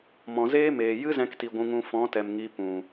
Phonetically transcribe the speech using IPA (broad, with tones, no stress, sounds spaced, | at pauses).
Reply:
m ɔ̃˨ z eː˦ m eː˨ j ɨ˦ z ɛ̃˧ k t i˨ ɡʷ ũ˧ ŋ ũ˧ f ɔ̃˨˦ t ɛ˨ m ŋ i˧ p ũ˨